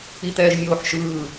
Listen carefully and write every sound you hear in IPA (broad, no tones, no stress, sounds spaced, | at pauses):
i t̪ ɛː ʒ mʲ oː ħ ʃ ɯː